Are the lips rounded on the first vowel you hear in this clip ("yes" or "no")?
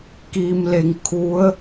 no